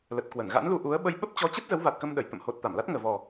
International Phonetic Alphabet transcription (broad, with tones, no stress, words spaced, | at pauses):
lə˨˩t̚kwə˧˩nɣa̰˧˥nlu˧ ʔu˨˦ə̯ɓə˧j ɓə˦˥p̚t͡ɕɔ˨˦t͡ɕə˦˥t̚ zə˨˦wva˨˩t̚kə˧m ɗə˧˩j t̪ə̰˧˨mho˨˩t̚ t̪a˧˩mla˦˥t̚ ŋəː˨˩vɔ˨˩